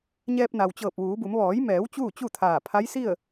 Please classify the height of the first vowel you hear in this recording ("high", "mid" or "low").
mid